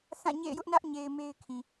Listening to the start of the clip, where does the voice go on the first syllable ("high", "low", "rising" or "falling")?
falling